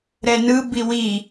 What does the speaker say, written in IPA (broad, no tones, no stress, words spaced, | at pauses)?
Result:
ɾɛnɯ biwi